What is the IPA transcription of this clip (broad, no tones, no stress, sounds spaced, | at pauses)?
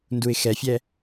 n d u ɪ̯ x ɛ fʲ ɛ